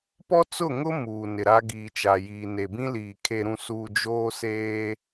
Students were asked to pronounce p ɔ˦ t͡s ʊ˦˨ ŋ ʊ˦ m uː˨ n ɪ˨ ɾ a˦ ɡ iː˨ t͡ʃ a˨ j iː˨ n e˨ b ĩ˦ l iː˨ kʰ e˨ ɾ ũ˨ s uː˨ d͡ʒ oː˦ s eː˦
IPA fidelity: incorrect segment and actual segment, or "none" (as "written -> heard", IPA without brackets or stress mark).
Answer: none